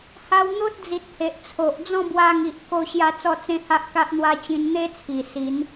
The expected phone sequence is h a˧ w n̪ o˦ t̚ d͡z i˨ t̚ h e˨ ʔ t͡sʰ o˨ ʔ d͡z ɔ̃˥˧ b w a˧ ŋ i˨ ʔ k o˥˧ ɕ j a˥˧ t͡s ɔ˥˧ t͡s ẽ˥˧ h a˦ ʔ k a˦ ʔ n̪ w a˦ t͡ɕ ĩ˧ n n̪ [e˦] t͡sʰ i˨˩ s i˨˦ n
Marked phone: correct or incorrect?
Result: correct